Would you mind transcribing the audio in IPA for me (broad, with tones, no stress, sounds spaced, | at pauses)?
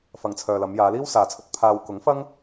f ɐ˨ ŋ t͡sʰ œː˨ l ɐ˨˧ m j aː˨˧ l iː˥ w s aː˨ t͡sʰ ɵ˧ t̚ pʰ aː˨ w k ʊ˨˥ ŋ f ɐ˥ ŋ